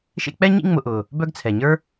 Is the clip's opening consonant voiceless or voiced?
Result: voiceless